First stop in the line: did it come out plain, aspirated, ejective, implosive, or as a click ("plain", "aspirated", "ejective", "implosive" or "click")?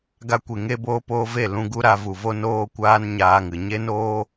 plain